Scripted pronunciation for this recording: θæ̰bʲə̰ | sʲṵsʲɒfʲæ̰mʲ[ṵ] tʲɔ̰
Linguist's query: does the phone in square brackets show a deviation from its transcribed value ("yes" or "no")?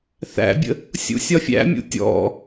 no